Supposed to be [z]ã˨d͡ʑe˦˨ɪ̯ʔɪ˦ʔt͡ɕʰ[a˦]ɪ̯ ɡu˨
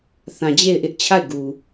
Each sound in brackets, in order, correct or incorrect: incorrect, incorrect

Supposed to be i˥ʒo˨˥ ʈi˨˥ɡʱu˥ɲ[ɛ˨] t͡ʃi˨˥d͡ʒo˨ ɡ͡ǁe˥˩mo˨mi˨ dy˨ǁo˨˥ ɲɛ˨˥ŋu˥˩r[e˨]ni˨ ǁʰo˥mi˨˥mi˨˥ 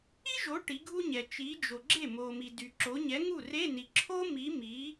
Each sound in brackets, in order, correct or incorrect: correct, incorrect

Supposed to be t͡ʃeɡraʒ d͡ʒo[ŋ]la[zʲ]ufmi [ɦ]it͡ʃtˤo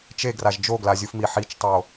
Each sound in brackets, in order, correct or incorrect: incorrect, correct, incorrect

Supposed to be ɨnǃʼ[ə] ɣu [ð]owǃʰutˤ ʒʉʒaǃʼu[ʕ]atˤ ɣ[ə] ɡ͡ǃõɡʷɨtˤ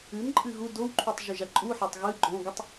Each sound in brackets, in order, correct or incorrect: incorrect, incorrect, incorrect, incorrect

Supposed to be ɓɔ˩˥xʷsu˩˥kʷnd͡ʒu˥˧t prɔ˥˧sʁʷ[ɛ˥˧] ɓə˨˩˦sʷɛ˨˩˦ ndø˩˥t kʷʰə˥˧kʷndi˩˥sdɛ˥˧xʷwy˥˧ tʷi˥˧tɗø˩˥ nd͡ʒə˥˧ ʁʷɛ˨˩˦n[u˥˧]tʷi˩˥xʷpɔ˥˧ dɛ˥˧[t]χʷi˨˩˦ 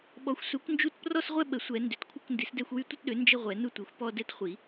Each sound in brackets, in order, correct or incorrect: correct, correct, correct

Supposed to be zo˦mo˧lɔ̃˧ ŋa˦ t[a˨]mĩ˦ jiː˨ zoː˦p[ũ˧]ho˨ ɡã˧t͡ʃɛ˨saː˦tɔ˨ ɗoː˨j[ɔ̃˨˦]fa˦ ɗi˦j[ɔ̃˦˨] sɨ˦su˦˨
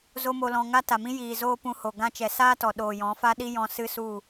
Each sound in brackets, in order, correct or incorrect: correct, correct, correct, incorrect

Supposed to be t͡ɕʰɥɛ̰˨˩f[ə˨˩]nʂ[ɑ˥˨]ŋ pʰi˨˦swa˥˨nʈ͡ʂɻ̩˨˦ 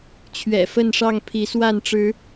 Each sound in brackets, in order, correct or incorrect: incorrect, correct

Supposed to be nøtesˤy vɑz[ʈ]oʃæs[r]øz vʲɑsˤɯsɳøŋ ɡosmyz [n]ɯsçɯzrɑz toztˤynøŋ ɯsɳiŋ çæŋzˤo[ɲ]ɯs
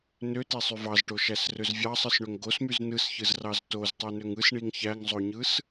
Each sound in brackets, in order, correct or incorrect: correct, correct, correct, correct

